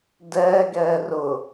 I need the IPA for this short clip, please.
dɛːɡɛː rʊ

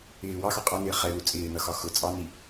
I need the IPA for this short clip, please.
ɪː wɑxɒ qʼɒnɪː χɛlu t͡sʼɪːnʌxɒ xʊ t͡sʼɑni

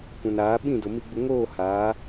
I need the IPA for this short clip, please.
kʷã˨naː˨˦ ɓĩ˦˨dʊ˨ mi˨ɡ͡bʊ˨ ŋoː˦˨haː˨˦

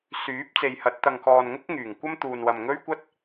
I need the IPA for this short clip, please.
syː˨˥p̚t͡se˨jhɐ˨˥t̚ t̪ɐ˨ŋkɔː˨nŋʊ˥k̚ ŋyː˨˩ŋkʷɐ˥mt̪uː˨nwɐ˨m ŋɵ˥ɥkʷɐ˥t̚

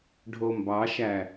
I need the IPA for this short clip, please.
ɖʱombɑʃæ

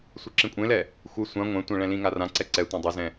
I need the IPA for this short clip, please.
sʷiǁĩkʷʼẽlɛ | xʷɨ sʷã ŋʷɛ̃tʷɛ̃ ɭɛ̃lĩŋa rãǀɛ ǀɛ tʷẽdˤɘzɛ̃

